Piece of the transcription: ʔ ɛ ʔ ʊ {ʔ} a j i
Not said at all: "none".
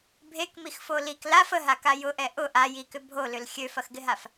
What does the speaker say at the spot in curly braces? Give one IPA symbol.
ʔ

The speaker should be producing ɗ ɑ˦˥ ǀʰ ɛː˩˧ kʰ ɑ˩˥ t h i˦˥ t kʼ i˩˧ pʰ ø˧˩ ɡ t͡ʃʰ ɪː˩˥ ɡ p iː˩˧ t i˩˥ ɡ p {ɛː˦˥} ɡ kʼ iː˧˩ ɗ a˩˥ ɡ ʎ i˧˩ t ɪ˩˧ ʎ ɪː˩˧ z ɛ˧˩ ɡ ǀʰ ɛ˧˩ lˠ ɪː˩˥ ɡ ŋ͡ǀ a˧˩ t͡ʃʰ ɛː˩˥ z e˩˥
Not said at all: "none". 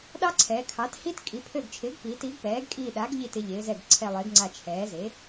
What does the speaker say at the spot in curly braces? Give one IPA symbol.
ɛː˩˥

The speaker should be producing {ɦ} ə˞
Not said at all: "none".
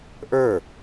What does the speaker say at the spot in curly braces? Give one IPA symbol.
ʔ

